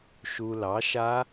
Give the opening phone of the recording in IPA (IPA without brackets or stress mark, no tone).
ʃ